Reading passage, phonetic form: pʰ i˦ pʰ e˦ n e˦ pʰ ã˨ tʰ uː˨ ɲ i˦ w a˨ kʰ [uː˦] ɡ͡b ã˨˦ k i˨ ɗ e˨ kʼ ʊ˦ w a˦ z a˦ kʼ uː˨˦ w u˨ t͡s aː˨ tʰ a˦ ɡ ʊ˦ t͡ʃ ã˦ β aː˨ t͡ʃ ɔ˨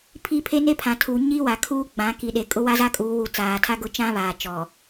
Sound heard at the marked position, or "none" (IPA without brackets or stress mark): uː˦